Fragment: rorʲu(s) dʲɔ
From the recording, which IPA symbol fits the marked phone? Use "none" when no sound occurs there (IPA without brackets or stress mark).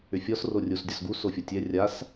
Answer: s